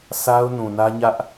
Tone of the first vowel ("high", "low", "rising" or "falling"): high